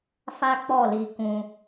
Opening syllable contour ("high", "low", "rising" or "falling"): high